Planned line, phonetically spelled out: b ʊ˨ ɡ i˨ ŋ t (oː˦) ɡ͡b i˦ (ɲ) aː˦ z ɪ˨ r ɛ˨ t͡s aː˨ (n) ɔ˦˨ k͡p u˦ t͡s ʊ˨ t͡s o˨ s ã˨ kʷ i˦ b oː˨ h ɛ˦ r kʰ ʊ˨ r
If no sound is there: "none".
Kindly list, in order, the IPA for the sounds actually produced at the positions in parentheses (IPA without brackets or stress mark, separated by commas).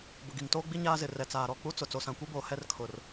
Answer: oː˦, ɲ, ɾ